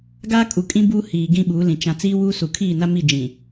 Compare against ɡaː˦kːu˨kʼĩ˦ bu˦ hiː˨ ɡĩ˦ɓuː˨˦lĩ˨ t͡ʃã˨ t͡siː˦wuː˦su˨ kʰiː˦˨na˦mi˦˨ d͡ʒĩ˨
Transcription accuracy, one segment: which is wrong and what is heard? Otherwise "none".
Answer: kː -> kʼ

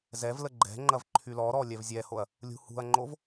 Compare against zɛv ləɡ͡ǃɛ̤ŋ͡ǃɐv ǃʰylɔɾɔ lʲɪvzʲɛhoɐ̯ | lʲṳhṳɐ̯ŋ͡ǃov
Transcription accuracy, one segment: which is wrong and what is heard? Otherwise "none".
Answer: ɪ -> ɛ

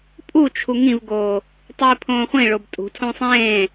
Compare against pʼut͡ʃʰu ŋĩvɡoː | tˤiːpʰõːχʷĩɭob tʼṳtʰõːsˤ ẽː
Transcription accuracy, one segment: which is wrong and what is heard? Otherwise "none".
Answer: none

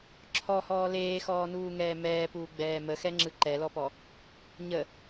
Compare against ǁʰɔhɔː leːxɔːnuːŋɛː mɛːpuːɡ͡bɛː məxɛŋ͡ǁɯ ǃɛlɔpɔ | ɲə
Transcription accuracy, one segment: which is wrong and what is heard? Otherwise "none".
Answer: none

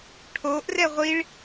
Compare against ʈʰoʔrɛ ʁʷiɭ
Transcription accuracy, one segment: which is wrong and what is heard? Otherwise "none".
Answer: none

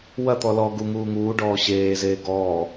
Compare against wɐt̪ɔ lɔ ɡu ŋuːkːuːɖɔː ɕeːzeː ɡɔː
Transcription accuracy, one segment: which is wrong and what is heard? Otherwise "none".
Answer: kː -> ŋ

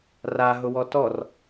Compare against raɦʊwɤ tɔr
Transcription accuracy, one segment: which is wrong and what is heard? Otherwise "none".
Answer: ɤ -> ɔ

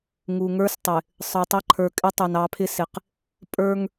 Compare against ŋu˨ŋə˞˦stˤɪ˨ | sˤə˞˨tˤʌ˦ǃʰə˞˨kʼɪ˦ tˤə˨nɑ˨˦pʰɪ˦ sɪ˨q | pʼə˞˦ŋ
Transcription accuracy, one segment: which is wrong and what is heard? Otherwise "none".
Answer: ə˨ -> ʌ˨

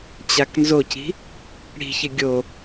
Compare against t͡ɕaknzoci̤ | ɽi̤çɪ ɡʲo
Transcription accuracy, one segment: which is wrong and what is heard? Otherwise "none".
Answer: none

